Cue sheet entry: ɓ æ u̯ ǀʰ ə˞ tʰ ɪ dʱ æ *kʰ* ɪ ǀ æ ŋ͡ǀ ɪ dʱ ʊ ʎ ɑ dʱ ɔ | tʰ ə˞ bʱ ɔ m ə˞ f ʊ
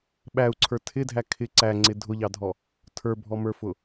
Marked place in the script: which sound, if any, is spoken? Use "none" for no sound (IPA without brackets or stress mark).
kʰ